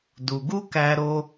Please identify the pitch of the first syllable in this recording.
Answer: low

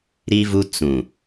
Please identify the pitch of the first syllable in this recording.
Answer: high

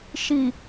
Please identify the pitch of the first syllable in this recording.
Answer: low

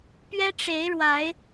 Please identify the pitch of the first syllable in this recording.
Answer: high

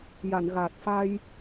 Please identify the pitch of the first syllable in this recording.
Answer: low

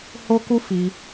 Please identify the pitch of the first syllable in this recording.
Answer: high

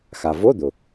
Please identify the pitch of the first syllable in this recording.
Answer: low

